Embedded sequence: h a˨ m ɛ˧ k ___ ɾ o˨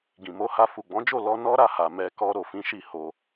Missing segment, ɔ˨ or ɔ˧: ɔ˧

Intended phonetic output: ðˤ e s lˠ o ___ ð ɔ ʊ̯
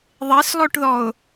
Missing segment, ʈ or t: ʈ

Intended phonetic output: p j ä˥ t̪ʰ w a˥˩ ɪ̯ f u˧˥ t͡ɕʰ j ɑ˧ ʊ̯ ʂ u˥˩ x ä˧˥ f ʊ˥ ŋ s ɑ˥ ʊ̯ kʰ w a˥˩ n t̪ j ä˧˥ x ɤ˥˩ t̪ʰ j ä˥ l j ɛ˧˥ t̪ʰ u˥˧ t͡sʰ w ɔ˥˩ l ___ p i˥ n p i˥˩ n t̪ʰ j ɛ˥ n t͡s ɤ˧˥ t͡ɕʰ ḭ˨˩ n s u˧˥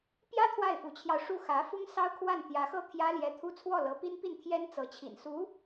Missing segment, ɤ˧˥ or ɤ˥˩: ɤ˧˥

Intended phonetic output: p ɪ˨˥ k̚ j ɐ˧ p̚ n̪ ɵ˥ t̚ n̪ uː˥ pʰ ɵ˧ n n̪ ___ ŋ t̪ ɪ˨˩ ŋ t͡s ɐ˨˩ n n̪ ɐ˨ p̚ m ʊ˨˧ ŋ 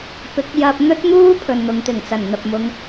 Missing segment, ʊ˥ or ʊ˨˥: ʊ˨˥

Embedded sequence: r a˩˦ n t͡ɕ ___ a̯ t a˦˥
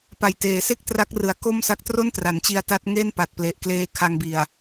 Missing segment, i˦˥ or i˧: i˧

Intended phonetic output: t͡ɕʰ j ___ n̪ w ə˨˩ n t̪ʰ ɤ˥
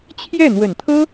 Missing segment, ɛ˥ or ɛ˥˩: ɛ˥˩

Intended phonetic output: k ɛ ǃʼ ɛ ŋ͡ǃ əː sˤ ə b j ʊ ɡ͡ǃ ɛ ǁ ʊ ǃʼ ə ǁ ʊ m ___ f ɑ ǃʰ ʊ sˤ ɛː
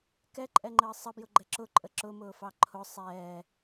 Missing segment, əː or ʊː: ʊː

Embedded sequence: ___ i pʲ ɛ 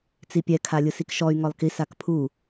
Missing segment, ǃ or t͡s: t͡s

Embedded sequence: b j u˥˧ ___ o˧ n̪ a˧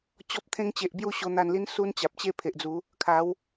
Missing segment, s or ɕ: ɕ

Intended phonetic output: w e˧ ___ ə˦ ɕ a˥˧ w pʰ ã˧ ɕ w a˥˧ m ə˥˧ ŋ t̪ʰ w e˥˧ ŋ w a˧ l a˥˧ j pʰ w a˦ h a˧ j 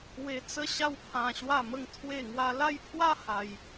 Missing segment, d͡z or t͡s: t͡s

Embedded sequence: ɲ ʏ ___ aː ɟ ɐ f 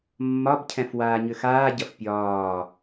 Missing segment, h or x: x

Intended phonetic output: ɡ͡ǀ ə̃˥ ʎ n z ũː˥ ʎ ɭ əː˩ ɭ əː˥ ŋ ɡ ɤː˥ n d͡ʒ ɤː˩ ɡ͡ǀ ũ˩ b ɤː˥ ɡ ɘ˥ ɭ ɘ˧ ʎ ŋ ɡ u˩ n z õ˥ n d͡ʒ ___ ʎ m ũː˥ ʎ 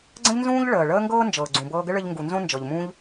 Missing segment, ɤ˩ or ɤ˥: ɤ˩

